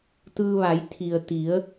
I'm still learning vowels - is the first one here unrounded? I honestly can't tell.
yes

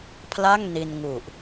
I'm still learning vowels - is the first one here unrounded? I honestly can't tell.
yes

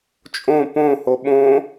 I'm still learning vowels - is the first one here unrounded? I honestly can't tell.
no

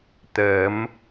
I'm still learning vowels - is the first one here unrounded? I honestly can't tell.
yes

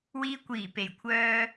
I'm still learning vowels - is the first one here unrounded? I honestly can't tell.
yes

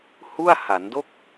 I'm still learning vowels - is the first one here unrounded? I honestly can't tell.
no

